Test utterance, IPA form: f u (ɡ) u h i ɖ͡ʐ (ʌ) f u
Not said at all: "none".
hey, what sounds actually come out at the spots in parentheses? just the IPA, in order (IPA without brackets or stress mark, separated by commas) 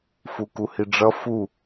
k, ʌ